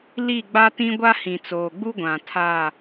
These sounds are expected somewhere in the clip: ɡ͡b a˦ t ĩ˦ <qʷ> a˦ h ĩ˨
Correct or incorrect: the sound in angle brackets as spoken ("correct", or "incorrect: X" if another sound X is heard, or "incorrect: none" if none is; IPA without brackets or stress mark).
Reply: incorrect: ɡʷ